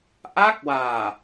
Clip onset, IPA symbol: ʔ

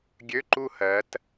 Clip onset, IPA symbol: ɡʲ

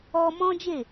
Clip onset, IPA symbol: ɔ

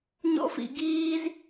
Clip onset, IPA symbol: ɲ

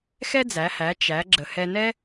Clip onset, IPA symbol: x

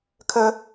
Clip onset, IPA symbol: kʰ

